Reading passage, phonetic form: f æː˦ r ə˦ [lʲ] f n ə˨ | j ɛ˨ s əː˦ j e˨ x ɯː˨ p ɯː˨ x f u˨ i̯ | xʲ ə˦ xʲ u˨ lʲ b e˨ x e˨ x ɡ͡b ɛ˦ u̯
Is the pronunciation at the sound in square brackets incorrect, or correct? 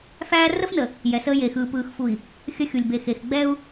incorrect